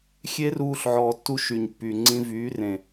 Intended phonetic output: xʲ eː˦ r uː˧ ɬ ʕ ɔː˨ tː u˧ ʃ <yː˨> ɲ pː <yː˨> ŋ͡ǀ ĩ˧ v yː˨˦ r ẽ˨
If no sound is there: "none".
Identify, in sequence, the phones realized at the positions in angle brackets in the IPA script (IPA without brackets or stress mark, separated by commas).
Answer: y˨, y˨